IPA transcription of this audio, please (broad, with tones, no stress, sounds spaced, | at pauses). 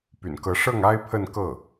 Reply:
p y̰˨˩ n k ɤ˧˥ ʂ ɤ˥˩ ŋ a˥ ɪ̯ pʰ ə˥˧ n k ɤ˥˩